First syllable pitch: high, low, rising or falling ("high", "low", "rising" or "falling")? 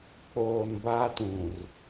low